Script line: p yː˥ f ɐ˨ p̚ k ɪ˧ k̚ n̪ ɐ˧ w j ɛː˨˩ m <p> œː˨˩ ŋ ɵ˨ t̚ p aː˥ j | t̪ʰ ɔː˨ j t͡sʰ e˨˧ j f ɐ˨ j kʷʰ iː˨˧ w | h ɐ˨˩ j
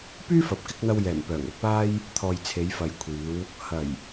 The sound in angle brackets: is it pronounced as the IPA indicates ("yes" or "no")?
yes